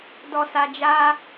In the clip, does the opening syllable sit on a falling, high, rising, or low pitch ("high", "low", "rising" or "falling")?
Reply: low